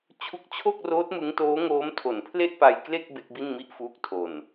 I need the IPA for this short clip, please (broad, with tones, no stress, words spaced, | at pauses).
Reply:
t͡ɕʰu˦˥k̚t͡ɕʰo˥˩k̚roː˦˥t̚ mɯ˦˥ŋtoː˦˥ŋoː˦˥m tʰo˨˩npʰle˥˩ʔpa˧jkle˥˩k̚ be˦˥k̚bi˥˩nmi˥˩ʔfuː˦˥k̚ tʰo˨˩n